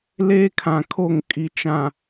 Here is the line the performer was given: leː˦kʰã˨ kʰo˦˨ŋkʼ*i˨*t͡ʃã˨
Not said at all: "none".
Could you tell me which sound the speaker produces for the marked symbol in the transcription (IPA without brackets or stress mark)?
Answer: i˨